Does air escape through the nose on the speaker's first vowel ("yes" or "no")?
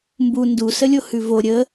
no